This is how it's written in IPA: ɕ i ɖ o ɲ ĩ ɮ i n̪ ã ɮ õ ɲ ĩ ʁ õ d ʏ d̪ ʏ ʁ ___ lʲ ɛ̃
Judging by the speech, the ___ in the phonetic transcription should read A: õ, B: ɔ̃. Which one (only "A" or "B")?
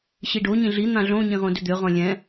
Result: B